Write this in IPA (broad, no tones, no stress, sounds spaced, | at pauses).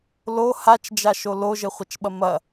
l o h a t͡ʃ d͡ʒ a ʃ o l o ʒ ɘ χʷ ɐ t͡ʃ ɓ ɐ m ɐ